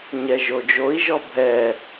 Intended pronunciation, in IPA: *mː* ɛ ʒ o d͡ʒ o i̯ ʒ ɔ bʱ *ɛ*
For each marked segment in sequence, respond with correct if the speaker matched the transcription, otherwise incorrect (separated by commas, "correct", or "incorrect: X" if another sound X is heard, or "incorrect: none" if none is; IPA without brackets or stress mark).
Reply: incorrect: ɲ, correct